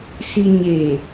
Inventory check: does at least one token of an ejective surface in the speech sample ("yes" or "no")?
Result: no